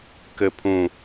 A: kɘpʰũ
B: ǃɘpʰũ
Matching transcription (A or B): A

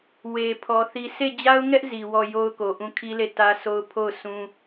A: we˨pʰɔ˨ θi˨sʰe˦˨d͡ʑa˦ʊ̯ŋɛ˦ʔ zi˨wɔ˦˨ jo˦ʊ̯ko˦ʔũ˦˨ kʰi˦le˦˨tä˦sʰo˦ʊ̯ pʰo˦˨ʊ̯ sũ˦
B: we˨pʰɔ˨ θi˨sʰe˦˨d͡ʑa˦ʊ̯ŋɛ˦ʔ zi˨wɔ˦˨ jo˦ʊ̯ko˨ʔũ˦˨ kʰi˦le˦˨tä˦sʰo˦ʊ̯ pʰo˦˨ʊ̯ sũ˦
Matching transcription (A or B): B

